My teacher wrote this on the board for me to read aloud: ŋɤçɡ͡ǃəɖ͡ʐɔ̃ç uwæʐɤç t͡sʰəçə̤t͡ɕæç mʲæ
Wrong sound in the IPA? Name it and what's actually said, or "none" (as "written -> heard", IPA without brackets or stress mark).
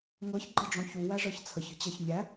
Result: none